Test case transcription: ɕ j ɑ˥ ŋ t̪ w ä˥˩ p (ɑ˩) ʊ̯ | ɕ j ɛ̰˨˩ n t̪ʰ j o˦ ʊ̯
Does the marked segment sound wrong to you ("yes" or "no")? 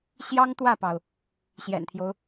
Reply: no